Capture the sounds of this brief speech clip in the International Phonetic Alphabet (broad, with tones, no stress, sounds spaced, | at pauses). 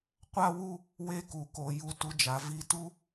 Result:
qʷ a˥ w u˥˧ | w e˥˧ k u˩˧ k o˩˧ j u˧ t u˧ d͡ʒ a˩˧ v i˧ t u˥